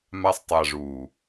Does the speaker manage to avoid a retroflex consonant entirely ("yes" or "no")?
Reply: no